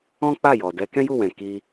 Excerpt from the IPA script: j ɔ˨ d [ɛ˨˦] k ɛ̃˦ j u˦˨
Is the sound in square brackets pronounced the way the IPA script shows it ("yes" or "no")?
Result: yes